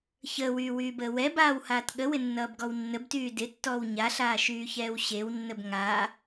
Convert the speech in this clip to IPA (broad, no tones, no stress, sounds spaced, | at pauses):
ç əː w yː w yː b əː w ɛ b aː w h aː t ɠ ə w ɪ nː ʌː b ɡ ɔ w nː ə b t yː d ɪ tː ɔː w ɲ a ɬ aː ʃ yː ç ɛː w ɕ e w nː ə b ŋ a